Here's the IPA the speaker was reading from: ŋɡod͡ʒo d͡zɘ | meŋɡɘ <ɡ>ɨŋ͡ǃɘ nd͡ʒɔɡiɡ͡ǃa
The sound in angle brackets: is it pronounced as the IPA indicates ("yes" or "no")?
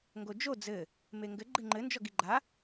no